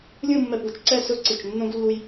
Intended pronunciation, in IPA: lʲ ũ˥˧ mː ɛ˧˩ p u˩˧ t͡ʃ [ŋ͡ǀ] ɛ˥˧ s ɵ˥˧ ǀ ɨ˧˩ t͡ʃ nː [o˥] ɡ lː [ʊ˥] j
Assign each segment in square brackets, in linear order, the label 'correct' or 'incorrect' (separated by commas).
incorrect, incorrect, incorrect